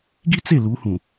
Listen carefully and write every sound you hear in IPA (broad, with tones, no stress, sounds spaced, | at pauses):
ɡ i˦ t͡s e˦˨ l u˨˦ h ũ˨